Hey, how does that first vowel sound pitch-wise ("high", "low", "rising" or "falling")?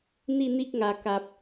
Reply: falling